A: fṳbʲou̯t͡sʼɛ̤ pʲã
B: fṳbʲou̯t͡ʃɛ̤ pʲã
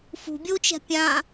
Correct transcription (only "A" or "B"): B